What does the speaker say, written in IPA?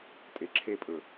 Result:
tʼ e ǁʰ e pʼ ɵ

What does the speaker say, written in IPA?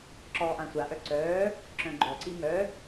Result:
ǁ ɔː ʔ ã sʷ a ʔ œ ǀ œː | ǁ œ̃ ɡ͡ǃ ɔ ǀ i m œ

